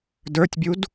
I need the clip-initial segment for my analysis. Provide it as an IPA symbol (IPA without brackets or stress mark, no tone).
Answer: d